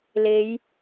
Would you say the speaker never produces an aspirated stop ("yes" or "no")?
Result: yes